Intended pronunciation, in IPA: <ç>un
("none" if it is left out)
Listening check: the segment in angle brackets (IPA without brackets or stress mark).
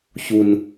ç